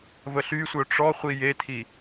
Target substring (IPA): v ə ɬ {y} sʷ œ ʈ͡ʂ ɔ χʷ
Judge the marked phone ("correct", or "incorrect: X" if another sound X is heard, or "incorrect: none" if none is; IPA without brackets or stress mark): correct